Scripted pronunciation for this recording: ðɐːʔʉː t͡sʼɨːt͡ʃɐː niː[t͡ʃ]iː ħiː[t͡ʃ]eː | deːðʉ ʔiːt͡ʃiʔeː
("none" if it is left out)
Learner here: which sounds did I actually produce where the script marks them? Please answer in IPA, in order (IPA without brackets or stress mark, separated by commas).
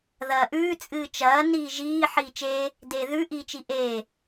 ʒ, t͡ʃ